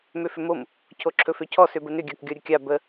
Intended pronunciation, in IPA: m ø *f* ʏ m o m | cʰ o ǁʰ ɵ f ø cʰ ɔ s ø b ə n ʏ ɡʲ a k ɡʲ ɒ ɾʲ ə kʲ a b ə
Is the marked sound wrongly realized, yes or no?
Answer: no